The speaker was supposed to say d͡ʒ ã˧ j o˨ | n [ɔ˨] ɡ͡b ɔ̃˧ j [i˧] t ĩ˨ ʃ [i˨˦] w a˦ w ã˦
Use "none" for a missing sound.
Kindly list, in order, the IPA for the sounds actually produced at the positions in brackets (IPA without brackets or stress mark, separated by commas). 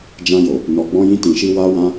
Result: ɔ˨, ĩ˧, i˧